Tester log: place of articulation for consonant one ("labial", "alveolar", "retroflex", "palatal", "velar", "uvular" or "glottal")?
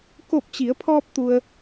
velar